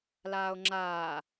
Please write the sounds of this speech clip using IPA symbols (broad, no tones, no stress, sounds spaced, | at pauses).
l aː o̯ ŋ͡ǁ aː